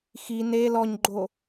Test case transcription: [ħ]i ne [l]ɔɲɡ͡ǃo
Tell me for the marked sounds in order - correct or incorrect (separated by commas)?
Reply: incorrect, correct